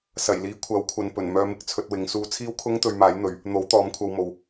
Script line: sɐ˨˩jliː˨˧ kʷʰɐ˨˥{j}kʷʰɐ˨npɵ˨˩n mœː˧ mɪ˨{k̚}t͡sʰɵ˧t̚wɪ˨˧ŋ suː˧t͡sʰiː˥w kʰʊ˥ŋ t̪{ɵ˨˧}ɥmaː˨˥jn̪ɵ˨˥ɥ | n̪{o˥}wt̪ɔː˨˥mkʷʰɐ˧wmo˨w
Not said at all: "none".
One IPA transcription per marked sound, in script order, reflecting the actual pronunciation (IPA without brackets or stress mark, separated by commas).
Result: w, k̚, ɵ˧, o˨˥